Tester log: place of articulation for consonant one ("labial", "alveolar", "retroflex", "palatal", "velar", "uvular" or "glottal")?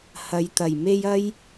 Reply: glottal